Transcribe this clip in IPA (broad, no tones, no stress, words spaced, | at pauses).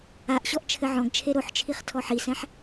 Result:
aʔɕɔʔ t͡ʃʰɘʕɔ̃ɡt͡ʃʰe ɾoħt͡ʃʰiχ tʰɔħisɛ̃ħ